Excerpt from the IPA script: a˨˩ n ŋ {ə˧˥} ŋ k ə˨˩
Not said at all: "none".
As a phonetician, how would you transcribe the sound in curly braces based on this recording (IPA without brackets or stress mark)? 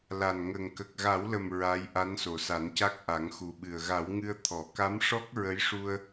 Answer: ə˨˩